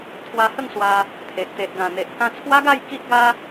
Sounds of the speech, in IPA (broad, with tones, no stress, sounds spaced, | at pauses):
t̪ʰ w a˧ h ə˥˧ ŋ s w a˧ | t̪ʰ e˨ ʔ t̪ e˨ ʔ ɡ ã˨˩ n̪ e˨ ʔ k ã˧ t͡sʰ w a˦ ɡ a˥˧ j k i˦ ʔ ɡ a˦